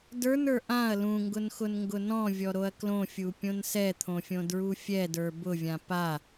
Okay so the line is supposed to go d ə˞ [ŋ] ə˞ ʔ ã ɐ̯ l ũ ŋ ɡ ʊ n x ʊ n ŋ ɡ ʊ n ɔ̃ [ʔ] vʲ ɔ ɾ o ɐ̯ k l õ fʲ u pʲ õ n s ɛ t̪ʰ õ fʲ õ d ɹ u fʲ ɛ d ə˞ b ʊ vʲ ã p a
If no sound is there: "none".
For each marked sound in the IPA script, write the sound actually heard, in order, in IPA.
n, none

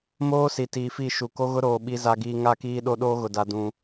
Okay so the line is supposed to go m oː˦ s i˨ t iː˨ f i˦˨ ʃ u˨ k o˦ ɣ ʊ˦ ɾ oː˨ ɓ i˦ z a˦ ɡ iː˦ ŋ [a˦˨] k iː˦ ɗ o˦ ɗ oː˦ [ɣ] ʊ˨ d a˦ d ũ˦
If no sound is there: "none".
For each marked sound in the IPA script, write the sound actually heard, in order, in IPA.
a˦˨, ɣ

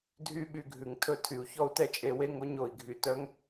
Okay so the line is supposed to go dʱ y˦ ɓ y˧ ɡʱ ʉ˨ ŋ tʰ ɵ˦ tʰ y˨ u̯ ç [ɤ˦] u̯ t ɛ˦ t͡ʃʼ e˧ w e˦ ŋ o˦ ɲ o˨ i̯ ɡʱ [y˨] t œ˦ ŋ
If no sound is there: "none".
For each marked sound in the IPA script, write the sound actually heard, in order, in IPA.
ɔ˦, y˨

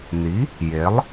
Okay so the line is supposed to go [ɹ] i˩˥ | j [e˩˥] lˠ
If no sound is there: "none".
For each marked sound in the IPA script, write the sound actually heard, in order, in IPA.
n, e˩˥

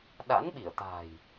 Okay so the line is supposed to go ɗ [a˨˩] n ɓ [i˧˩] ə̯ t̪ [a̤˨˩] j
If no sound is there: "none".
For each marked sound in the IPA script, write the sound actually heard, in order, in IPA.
a̰˧˥, i˧˩, a̤˨˩

